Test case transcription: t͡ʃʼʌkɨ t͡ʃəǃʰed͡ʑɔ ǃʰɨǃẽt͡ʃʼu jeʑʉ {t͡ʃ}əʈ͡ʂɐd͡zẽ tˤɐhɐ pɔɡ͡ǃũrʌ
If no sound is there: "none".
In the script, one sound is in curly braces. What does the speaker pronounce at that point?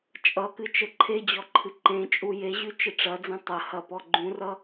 t͡ʃ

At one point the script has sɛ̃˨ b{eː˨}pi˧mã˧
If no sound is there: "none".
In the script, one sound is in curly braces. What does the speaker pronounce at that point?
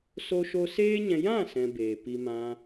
eː˨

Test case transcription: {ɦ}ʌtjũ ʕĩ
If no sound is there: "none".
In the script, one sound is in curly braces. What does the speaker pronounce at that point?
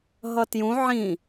ɦ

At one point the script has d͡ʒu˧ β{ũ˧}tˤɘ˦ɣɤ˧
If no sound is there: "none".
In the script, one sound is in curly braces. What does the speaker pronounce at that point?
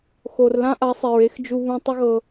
ũ˧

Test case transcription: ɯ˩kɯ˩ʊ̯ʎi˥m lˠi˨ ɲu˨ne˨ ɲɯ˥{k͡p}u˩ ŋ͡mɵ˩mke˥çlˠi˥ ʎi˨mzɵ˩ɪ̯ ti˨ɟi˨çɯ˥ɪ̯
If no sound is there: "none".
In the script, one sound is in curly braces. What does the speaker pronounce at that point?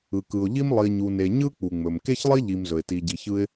k͡p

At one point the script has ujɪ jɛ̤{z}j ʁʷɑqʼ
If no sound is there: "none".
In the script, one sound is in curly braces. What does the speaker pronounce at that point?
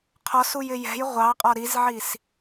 none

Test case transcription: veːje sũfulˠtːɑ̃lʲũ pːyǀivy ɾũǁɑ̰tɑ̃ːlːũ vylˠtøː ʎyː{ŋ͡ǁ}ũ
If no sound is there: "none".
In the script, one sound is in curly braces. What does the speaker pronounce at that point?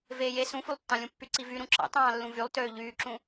ǁ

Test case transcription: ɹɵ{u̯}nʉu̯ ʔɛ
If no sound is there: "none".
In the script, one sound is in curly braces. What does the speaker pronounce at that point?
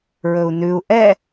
u̯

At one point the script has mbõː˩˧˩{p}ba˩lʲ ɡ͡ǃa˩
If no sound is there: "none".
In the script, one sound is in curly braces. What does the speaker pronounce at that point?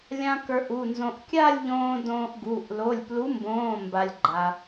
m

